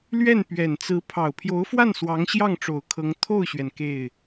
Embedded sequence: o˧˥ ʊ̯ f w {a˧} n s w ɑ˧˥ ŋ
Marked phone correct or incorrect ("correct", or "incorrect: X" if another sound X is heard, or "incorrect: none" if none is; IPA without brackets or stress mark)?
incorrect: a˥˩